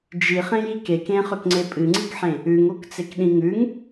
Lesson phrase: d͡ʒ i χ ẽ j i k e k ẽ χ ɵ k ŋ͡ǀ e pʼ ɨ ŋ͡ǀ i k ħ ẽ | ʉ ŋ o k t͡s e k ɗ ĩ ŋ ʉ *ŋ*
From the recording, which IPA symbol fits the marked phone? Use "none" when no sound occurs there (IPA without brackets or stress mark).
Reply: ŋ